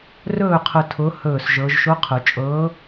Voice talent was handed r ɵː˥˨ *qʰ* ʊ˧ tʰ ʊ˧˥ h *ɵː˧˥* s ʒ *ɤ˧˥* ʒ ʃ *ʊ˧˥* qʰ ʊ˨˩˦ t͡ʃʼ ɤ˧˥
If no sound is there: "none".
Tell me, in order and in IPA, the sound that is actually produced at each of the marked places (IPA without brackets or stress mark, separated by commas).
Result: qʰ, ɵː˥˨, ɤ˧˥, ʊ˧˥